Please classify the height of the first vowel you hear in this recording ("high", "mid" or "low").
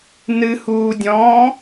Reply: high